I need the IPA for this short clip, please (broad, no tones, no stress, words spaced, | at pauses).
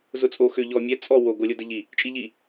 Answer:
zʊt͡sʼo xʏ ʎɔ mʲɛ t͡sʼɔ wo ɡolʲodəʎi | t͡ʃʼiʎi